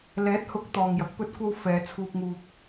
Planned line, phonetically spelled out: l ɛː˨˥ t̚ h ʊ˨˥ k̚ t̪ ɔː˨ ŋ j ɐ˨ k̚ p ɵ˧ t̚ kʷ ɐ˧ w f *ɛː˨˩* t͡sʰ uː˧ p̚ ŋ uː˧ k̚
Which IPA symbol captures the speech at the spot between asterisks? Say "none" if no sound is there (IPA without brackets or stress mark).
ɛː˨˧